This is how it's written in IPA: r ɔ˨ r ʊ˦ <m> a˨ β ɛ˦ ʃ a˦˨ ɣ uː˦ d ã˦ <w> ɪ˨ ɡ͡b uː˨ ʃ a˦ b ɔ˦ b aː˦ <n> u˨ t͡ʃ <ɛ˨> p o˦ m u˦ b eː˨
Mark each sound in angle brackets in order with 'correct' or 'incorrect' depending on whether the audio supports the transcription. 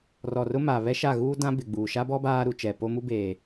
correct, incorrect: b, incorrect: ɾ, correct

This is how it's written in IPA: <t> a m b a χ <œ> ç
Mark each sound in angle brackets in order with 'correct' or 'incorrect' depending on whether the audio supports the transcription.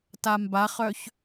correct, correct

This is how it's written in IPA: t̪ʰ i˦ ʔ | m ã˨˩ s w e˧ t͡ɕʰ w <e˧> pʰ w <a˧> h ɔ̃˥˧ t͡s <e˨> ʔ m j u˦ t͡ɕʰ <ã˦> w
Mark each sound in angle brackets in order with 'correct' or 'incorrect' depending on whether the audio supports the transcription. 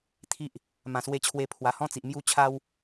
correct, incorrect: a˨˩, incorrect: i˨, incorrect: a˦

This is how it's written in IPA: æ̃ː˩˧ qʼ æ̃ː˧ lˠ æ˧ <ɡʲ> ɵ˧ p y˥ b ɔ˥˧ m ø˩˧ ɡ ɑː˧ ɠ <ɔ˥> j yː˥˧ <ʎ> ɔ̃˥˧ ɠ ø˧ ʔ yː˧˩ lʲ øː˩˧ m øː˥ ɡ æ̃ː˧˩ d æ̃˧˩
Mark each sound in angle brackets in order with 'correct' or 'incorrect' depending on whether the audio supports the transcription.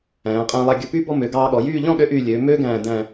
correct, incorrect: ɔ˩˧, correct

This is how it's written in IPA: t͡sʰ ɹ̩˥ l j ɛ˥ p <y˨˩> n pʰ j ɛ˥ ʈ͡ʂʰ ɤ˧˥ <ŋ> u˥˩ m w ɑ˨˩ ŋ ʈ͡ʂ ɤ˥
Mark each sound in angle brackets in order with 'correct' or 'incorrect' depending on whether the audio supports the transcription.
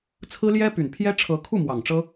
correct, incorrect: kʰ

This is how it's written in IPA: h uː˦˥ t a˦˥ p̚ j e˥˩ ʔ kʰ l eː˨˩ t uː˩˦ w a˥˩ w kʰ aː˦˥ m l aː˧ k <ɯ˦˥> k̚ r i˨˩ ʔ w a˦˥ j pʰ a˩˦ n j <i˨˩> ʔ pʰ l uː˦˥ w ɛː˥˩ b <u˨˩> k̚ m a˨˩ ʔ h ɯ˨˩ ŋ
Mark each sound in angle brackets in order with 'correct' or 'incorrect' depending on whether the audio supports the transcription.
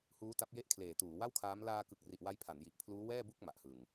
incorrect: ɯ˨˩, correct, incorrect: u˥˩

